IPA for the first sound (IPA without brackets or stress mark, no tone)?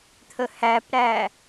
t̪ʰ